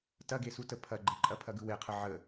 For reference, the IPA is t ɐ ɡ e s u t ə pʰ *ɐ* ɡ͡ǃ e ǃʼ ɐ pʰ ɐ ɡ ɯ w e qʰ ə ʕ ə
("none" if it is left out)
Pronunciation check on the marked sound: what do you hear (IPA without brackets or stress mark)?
ɐ